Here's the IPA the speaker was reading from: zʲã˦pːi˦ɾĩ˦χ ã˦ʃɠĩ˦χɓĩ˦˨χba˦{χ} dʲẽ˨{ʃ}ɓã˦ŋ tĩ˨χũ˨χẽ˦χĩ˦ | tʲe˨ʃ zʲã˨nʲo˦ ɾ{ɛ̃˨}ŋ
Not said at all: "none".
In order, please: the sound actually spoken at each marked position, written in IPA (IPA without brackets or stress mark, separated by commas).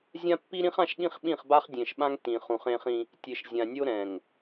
χ, ʃ, ɛ̃˨